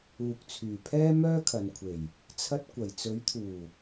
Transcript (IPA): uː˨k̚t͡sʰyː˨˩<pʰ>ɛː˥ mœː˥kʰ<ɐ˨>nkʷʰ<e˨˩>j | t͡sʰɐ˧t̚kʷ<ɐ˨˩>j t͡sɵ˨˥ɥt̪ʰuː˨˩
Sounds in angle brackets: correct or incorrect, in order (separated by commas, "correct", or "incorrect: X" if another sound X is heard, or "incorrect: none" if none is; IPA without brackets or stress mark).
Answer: correct, correct, correct, correct